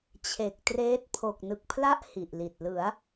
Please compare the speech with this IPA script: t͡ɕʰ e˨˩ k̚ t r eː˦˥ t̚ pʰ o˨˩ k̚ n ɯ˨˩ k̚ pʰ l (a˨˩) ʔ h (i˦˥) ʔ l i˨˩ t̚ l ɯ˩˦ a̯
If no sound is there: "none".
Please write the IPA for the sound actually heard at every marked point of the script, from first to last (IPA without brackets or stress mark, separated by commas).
a˥˩, i˨˩